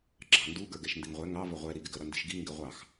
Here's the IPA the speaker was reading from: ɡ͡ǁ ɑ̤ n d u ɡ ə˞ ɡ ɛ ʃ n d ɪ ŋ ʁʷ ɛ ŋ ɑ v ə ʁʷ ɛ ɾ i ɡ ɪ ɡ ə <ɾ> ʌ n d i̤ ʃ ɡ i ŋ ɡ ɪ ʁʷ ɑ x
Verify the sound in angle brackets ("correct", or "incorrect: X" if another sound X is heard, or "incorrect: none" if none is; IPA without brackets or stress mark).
correct